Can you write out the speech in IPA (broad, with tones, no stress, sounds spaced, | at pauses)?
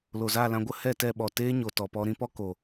l o˨ z aː˦˨ l ã˧ ɡʷ ə˦ h ɛ˦˨ t ɛ˦˨ ɓ ɔ˨ t eː˦ ɲ o˨ t ɔ˨ p ɔ˧ ɾ ĩ˦ p ɔ˦ k o˨